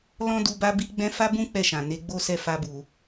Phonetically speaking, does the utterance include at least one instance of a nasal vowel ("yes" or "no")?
yes